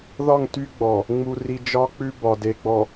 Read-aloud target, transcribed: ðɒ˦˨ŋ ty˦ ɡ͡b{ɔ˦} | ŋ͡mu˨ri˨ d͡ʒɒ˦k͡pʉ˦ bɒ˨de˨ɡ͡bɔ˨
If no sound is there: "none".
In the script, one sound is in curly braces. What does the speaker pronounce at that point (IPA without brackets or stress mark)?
ɔ˨